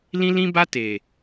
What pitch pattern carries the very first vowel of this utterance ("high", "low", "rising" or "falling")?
high